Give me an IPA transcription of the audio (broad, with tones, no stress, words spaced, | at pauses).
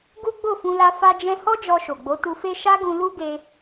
ɡu˦ɡ͡bo˦˨fũ˧la˧ fa˧d͡ʒɛ̃˧ hɔ˦d͡ʒɔ˧ʃo˨ɡ͡bo˨˦ tu˧fe˦ ʃa˦ɡũ˧ lu˦ɡe˧